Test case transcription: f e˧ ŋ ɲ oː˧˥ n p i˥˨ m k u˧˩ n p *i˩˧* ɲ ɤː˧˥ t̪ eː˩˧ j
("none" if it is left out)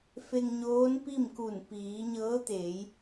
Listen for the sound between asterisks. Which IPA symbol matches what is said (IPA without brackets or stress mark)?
iː˩˧